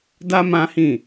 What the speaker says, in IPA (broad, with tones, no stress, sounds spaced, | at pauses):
d a˦ m ã˦ h ĩ˦˨